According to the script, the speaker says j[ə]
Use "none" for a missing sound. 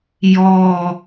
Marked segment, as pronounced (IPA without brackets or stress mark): ɔ